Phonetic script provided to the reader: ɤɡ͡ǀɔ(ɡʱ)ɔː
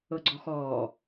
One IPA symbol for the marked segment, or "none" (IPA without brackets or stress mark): x